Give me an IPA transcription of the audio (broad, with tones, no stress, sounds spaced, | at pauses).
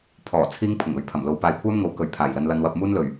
pʰ ɔː˨˩ t͡sʰ iː˧ ŋ pʰ ʊ˨˩ ŋ ɵ˨˥ ɥ pʰ ɐ˨˩ m l o˨ w p aː˨ j kʷʰ œː˥ m ŋ o˨˥ w k ɵ˨˩ ɥ pʰ aː˨˩ j l ɐ˧ n l ɐ˧ n w ɐ˧ p̚ m uː˥ n l ɵ˨˩ ɥ